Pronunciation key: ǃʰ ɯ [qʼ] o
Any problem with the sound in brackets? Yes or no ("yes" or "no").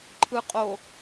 no